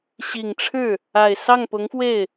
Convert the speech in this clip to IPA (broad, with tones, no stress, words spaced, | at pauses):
ɕi˨˩ŋʈ͡ʂʰɻ̩˥˩ | a˨˩ɪ̯sɑ˥˩ŋpʊ˧˥ŋfwe˥˩ɪ̯